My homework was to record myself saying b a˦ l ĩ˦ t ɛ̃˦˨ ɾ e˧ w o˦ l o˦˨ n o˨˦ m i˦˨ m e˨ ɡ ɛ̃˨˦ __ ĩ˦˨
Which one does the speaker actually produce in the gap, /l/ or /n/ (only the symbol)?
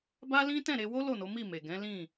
l